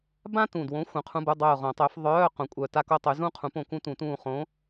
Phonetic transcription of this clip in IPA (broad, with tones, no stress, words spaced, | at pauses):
bã˥tũ˨˩dwõ˨˥ xʷœ̃˨˥qʰũ˧˥˧bu˧˥˧ dˤœ˦˨ʊ̯ʁõ˨˩˦tˤø˨˥f ðˤœː˧˥˧ qõ˨˩˦kʷʼœ˨˩ ta˥ko˥tˤy˨˥ zũ˥qʰũ˨˥ põ˦˨kũ˥tũ˨˩˦tũː˦˨ χõ˨˥